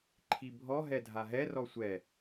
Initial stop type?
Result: click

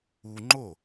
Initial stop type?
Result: click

